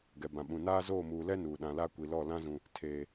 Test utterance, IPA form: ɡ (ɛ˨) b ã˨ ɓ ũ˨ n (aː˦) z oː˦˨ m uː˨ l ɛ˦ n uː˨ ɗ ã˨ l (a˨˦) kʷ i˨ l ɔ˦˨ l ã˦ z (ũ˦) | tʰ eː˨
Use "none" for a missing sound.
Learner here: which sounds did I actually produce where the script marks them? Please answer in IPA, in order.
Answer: ɛ˨, aː˦, a˦, ũ˨

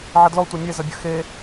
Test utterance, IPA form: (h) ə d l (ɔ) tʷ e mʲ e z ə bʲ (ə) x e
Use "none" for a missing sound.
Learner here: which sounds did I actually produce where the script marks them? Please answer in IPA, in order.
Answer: ʕ, ɔ, ə

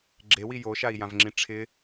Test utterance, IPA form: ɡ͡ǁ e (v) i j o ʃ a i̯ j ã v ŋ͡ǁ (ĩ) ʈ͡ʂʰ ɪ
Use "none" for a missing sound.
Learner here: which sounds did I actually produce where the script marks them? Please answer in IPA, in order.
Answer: w, ĩ

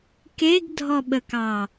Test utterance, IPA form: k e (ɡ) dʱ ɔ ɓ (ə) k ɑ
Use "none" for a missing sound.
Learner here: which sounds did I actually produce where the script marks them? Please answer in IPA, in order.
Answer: ɡ, ə

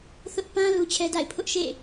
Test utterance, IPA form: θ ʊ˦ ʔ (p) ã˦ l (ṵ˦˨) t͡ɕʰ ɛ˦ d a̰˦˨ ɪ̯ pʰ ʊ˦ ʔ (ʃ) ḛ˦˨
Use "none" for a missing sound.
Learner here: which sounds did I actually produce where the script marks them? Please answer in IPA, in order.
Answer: p, u˦, ʃ

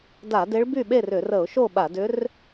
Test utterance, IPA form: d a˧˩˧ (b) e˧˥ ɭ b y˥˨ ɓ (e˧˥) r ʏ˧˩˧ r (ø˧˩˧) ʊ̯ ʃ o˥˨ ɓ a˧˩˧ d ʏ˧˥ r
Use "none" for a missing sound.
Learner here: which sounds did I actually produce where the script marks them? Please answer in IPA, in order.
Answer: d, e˥˨, ə˧˩˧

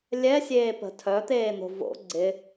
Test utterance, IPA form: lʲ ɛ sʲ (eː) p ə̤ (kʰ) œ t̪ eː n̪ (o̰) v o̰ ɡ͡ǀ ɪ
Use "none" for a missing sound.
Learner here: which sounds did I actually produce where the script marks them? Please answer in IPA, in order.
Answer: eː, tʰ, o̤

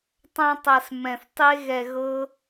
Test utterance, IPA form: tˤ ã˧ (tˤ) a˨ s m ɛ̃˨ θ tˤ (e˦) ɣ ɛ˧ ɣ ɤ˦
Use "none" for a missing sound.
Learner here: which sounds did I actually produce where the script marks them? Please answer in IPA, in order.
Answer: tˤ, e˦

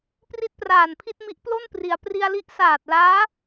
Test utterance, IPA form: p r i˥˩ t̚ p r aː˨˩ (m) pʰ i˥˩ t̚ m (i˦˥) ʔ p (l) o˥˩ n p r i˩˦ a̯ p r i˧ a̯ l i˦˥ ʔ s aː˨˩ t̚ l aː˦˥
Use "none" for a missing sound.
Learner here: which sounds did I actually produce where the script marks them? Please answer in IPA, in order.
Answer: n, i˦˥, l

